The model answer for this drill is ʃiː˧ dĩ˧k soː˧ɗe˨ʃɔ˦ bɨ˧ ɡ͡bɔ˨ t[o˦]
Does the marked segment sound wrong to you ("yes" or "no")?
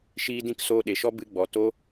no